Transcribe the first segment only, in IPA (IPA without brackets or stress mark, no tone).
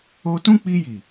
o